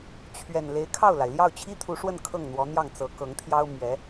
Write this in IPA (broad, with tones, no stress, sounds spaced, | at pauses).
t͡ɕʰ ɥ ɛ˨˩ n l e˧˥ ɪ̯ kʰ ɑ˥˩ ʊ̯ l a˩ ɪ̯ l j ɑ˥˩ ʊ̯ t͡ɕʰ i˥ t̪ʰ u˧˥ ʂ w ə˥˧ n kʰ ɤ˥˩ ŋ n̪ w ɔ˧˥ n̪ j ɑ˥˩ ŋ t͡s ɤ˧˥ k ɤ˧˥ ŋ t̪ʰ j ɑ˥ ʊ̯ m ɥ ɛ˧˥